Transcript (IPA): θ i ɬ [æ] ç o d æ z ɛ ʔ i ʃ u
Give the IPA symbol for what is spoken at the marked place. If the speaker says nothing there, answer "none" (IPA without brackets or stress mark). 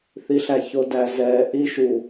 æ